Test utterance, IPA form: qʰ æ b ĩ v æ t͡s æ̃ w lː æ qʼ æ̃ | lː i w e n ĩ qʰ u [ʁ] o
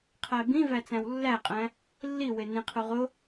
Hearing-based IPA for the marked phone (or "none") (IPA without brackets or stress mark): ʁ